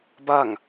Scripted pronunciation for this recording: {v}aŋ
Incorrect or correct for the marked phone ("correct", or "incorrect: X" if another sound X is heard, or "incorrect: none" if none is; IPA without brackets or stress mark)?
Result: incorrect: b